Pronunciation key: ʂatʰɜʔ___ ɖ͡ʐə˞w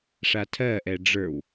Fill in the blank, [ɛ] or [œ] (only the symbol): ɛ